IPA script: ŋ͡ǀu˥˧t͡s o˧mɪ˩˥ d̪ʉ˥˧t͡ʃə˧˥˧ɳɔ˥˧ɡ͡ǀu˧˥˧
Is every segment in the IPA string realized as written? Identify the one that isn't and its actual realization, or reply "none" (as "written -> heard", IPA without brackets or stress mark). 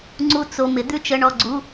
none